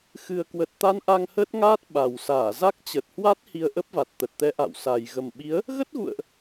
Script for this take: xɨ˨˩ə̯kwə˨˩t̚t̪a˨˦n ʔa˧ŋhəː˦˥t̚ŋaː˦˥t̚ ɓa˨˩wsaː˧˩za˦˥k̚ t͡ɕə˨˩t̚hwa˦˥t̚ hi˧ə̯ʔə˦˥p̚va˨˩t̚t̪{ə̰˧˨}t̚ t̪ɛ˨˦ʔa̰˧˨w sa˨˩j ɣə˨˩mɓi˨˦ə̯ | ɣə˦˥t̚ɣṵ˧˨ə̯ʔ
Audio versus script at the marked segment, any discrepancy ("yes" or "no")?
yes